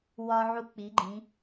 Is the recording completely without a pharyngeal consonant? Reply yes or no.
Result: no